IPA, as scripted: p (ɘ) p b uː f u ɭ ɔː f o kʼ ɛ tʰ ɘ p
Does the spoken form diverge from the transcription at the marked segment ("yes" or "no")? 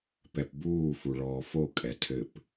yes